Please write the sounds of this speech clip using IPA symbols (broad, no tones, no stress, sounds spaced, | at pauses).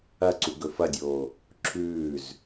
ɐ ǀ u ɡ ɵ f ɐ dʲ oː | ǁʰ ʉː z